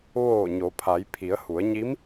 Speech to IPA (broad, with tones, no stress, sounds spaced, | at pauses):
ʋ oː˧˩ ɲ o˩˧ pʰ a˩˧ j pʰ i˩˧ ə̯ h u˩˧ ə̯ ɲ i˧˥ m